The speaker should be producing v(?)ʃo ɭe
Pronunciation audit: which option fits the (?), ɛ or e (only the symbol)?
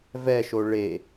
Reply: ɛ